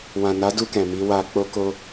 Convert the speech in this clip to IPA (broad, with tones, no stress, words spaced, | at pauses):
wã˨na˨˦du˧ kɛ̃˨mi˨˦ wa˧ k͡po˦ko˦